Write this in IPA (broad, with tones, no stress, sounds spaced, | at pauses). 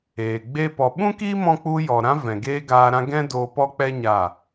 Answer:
eː˨ ɡ͡b e˦ p ɔ˧ ɓ ũ˦ k iː˦ m ɔ̃˧ k͡p u˧ j ɔ˨ ɾ ã˦ v ɛ̃˨ ɡ eː˦ ɡ aː˧ ɾ ã˦ ɡ ɛ̃˦ d oː˧ p ɔ˦ k͡p ɛ˦ ɲ aː˦˨